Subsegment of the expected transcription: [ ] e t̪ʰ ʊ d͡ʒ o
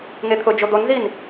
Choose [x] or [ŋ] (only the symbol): ŋ